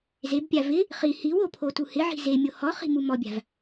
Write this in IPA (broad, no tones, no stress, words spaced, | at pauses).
zebpʲa vɪ | χi hiwo pʰotuhɪʕi̤ zemʲo hɔχi̤ mumɔbʲa̤v